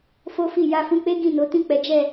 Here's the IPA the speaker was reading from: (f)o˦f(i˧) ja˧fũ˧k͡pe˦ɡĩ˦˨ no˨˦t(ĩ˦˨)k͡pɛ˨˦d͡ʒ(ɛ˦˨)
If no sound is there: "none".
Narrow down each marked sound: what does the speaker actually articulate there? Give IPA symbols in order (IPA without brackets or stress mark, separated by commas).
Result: f, i˦˨, ĩ˦˨, ɛ˦˨